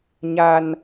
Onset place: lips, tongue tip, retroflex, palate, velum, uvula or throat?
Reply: palate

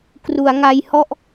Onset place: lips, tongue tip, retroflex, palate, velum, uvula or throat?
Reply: velum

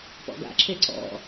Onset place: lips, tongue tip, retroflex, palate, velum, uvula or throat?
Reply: lips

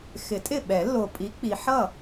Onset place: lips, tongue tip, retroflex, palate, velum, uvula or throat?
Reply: velum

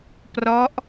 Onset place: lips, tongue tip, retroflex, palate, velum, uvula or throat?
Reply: lips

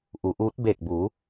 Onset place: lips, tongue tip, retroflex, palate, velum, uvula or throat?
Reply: throat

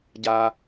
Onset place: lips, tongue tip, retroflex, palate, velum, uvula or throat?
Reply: palate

